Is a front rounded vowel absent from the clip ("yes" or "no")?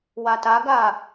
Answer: yes